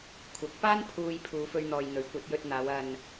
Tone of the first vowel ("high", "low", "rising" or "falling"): rising